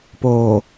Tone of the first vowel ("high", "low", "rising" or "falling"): low